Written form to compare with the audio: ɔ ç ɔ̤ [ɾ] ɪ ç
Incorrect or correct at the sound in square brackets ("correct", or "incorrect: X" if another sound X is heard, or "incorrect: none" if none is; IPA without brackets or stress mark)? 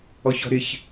correct